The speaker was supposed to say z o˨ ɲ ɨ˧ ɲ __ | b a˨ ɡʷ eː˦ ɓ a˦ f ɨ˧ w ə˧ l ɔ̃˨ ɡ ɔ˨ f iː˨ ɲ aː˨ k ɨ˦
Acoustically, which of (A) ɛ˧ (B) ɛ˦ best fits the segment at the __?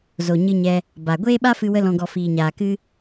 A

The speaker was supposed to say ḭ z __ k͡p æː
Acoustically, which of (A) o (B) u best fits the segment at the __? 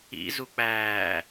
B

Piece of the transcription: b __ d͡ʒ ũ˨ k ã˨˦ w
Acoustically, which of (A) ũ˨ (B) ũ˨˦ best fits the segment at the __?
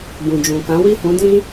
A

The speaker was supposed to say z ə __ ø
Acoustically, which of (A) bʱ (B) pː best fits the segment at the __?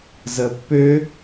B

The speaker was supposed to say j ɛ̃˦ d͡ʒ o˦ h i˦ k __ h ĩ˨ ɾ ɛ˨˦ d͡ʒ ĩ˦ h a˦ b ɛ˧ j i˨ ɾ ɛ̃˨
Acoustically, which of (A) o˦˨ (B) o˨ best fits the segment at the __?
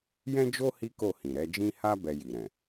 A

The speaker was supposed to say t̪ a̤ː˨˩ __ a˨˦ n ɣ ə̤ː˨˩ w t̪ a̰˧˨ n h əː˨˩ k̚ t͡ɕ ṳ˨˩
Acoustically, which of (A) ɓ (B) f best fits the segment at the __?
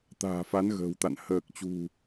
B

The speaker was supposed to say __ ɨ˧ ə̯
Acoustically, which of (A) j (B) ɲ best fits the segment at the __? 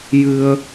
A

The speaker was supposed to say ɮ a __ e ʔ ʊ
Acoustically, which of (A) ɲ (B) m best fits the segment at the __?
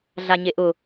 A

